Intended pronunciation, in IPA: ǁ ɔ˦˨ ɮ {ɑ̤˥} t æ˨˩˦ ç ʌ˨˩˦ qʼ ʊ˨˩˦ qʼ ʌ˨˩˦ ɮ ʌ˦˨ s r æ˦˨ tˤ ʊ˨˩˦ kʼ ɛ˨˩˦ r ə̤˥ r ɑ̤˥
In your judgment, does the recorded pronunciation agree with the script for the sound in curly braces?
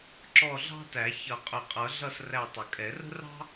yes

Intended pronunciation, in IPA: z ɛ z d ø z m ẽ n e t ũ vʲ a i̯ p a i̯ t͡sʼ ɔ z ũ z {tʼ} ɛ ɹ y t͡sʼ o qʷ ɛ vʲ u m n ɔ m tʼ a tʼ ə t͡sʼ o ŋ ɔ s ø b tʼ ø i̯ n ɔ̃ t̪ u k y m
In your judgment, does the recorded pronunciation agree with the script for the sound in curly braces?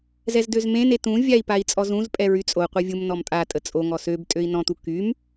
no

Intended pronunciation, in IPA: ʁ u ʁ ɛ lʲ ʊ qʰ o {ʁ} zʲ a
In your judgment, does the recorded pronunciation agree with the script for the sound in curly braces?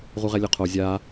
no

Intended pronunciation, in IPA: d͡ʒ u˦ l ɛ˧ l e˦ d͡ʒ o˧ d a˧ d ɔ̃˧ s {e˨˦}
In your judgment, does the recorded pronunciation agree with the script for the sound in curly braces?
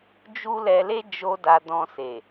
no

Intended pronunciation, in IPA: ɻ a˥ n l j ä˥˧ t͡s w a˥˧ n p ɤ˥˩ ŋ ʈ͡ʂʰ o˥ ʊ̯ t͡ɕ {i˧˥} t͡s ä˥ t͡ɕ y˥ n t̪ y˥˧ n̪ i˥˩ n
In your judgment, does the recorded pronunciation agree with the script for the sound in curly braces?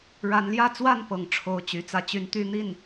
no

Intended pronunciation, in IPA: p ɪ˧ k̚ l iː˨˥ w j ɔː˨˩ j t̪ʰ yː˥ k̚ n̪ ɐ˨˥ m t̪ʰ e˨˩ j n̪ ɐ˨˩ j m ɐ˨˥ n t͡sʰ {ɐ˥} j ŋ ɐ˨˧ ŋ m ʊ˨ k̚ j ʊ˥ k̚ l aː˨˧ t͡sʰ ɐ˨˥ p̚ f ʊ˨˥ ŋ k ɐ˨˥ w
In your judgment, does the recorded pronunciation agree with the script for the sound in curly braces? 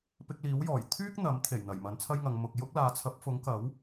yes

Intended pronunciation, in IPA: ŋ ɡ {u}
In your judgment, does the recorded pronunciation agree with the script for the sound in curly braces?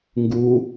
yes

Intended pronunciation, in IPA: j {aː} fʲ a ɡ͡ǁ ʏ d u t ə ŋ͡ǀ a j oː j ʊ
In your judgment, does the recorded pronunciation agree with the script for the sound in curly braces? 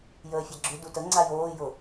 no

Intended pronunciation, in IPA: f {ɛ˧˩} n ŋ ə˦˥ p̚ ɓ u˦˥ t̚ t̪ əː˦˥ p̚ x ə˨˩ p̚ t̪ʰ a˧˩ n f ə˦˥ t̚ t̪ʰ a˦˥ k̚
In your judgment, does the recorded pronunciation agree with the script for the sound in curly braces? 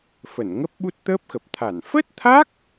no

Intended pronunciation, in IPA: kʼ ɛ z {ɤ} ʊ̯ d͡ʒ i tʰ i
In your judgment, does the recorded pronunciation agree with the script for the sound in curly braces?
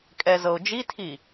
yes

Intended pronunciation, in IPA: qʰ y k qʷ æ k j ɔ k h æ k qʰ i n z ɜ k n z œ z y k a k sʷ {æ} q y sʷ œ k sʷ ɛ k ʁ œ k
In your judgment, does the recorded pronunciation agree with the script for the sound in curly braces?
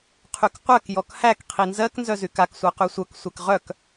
no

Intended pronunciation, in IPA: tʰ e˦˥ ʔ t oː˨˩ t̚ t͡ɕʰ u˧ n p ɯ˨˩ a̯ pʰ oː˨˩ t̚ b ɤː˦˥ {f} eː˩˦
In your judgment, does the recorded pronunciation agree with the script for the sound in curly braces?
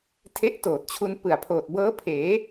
no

